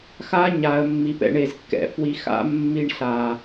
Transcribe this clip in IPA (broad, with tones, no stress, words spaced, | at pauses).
xa˦ ɲa˨ə̯mːi˨pɛ̰˧ ɳe˨zkːɛ̰˨ fwi˧xa̰˦ mːi˧ɳɬa˨